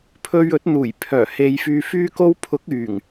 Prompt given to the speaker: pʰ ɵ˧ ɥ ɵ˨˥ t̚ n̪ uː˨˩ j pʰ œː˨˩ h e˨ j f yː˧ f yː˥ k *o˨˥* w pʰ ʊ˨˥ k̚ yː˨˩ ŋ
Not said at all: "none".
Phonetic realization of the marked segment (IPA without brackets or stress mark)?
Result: o˥